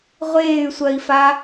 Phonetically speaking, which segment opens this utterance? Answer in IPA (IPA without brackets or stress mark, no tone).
ʁʷ